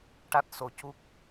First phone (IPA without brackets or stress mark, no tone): ʈ